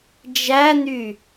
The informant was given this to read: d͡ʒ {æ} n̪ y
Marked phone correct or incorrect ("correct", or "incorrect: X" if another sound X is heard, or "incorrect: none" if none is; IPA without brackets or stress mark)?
correct